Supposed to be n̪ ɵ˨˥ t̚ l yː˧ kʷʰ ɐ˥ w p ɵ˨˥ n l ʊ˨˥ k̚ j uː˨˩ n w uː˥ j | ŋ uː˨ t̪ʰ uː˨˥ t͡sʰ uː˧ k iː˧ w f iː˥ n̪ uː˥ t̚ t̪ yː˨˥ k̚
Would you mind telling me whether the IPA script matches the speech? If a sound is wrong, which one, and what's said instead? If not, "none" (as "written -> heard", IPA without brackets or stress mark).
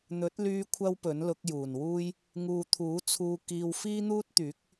none